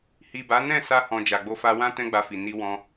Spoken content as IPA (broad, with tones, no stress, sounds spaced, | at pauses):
h i˨ b a˨˦ n ɛ̃˦˨ s a˧ h ɔ̃˨ d͡ʒ a˨ ɡ͡b o˧ f a˧ w ã˦ t ɛ̃˦ ɡ͡b a˧ f i˨ n i˧ w ɔ̃˧